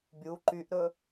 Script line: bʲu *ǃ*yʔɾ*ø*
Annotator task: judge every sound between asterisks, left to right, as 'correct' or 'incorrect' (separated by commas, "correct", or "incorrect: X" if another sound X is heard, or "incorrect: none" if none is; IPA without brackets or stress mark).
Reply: correct, incorrect: ɵ